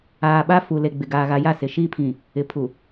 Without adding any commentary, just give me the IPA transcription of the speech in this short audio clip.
aː˨ ɓ a˦ f u˨ l e˨ ɡ͡b ɪ˨ ɡ aː˨ ɣ a˨ j a˦˨ s ɪ˨ ʃ iː˦ pʰ ĩ˨ | ɪ˨ pʰ u˨

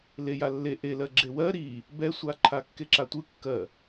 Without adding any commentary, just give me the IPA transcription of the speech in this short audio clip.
l e j a lː e ʔ e l ɜ ɡ͡ǁ e w ɜ ɾ i | b ɛ sʷ a ǃʰ a kː e ǁ a tʷ ɯ kː ɜ

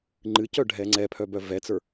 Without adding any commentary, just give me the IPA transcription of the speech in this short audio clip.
ŋ͡ǃ ɨ c œ ɖʱ ɛ ŋ͡ǀ ɛ pʰ œ b œ v ɛ t͡s ə˞

